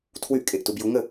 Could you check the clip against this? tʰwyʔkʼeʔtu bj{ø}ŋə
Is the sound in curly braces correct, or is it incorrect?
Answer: incorrect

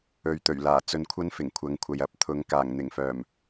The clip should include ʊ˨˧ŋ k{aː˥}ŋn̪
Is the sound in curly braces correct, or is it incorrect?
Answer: incorrect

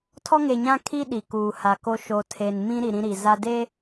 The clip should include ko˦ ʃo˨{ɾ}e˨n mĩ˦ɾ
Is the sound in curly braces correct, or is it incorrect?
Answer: incorrect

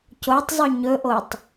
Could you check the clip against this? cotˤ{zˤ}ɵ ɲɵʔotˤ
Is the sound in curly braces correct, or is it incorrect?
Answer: correct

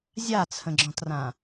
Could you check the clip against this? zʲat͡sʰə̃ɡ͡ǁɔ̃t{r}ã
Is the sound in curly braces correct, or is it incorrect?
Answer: correct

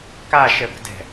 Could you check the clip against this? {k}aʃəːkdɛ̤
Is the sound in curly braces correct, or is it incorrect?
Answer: correct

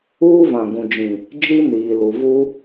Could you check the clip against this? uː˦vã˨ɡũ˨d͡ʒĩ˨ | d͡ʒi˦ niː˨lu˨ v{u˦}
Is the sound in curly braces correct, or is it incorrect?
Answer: correct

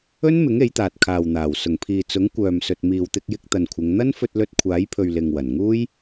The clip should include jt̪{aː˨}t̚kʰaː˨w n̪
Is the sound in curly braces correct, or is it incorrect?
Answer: correct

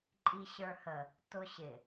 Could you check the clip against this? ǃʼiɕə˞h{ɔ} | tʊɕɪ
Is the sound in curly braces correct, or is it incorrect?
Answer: incorrect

